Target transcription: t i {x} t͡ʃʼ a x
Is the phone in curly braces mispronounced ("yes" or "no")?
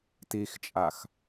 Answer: no